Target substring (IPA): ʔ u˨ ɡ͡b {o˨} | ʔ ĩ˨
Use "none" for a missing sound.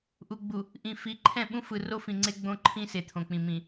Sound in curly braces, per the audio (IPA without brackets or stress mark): u˨